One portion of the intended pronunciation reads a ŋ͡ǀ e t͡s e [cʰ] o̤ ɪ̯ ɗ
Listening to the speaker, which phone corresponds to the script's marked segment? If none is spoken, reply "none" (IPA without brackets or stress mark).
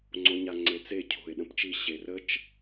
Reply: cʰ